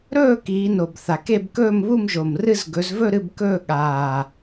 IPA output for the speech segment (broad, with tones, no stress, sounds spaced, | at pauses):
ɾ ɵː˥˧ k iː˨˦ n o˨˩ b θ a˨˩ k e˥˧ b k ɵː˥˧ m β u˥˧ m ʒ o˨˩ m r ɨ˥˧ z ɡ ɵ˨˦ z v ɵ˥˧ ɾ ɨ˥˧ b k ɵː˥˧ ɠ aː˨˩